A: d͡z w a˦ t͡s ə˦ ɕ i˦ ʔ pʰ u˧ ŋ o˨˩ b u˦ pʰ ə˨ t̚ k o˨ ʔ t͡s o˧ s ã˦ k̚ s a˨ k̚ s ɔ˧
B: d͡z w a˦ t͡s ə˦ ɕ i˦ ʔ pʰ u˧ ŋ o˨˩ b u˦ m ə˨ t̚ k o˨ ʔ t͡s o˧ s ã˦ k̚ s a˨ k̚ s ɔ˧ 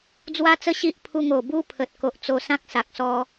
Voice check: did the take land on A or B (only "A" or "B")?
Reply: A